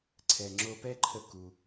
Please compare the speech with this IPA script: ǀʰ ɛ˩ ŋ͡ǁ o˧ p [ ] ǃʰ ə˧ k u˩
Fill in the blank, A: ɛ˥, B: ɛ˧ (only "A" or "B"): A